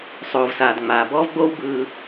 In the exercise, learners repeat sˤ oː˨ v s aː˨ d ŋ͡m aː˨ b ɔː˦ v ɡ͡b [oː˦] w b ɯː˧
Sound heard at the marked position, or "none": oː˦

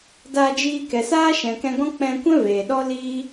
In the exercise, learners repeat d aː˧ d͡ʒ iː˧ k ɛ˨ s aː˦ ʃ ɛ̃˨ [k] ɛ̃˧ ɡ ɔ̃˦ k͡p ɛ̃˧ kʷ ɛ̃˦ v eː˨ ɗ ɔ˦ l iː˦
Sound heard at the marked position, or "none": k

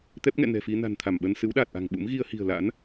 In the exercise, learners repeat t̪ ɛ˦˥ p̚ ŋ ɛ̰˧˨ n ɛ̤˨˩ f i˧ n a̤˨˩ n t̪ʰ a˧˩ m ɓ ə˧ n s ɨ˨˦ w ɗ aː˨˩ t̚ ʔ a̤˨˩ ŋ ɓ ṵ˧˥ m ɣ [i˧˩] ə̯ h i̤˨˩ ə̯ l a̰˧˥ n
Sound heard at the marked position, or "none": i˧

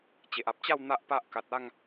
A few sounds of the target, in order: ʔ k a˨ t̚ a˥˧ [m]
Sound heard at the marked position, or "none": ŋ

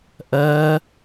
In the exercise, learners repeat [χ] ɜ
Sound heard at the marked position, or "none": ʔ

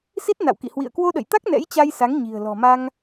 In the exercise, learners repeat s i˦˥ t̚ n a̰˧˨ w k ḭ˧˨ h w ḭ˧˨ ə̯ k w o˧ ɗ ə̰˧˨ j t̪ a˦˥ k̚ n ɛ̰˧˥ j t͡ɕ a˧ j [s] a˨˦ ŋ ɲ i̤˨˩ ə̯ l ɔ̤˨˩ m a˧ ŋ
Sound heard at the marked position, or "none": s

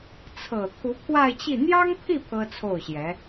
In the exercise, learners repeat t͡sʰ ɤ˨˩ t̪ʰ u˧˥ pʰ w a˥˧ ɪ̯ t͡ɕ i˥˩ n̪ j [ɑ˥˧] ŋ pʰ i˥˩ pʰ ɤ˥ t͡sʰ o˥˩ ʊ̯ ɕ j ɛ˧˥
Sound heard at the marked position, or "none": ɑ˥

